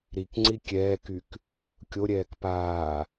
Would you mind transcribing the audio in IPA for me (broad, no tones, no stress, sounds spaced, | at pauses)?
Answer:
ɾ i k ŋ͡ǀ i kʲ ɛː k y k | kʲ o ɾʲ ɛː k p aː